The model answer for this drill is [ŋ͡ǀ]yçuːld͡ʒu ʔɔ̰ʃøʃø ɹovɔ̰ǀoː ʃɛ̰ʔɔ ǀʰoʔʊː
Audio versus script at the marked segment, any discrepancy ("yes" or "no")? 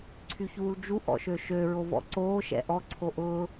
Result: yes